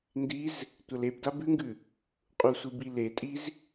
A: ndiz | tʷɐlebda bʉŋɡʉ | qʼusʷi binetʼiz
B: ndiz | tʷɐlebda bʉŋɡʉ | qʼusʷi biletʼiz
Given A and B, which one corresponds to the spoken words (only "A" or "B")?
B